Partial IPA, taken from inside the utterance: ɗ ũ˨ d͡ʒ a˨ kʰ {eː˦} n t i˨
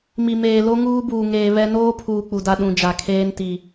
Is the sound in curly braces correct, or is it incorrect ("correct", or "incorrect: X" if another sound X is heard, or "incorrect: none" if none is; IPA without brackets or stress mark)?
correct